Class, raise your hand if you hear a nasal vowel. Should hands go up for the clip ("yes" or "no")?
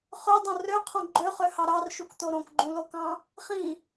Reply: yes